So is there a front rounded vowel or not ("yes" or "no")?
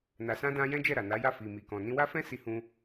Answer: no